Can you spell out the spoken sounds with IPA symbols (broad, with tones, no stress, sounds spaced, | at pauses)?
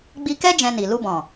ɡ͡b i˧ k ɛ˦ d͡ʒ ɛ̃˧ n i˨ l u˧ b ɔ̃˨